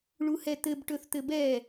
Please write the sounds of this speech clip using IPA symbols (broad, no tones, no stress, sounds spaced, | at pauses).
ɭ u h ɛ t̪ ɘ b ʈ ɵ θ t̪ ɘ b ɛ